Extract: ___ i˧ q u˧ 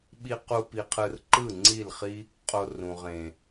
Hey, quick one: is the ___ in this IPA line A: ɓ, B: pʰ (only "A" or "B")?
A